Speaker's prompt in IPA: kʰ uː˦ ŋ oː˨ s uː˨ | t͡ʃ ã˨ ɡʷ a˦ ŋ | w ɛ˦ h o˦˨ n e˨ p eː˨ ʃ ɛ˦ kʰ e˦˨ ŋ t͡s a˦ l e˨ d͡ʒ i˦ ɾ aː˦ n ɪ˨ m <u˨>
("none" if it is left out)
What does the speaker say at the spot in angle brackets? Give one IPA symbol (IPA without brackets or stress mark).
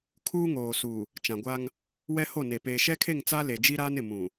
ũ˨